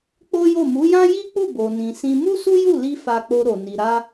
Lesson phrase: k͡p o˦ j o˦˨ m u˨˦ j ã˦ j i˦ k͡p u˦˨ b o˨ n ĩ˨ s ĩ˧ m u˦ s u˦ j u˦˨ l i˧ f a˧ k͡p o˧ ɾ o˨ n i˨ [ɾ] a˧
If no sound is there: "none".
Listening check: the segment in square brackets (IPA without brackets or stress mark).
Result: ɾ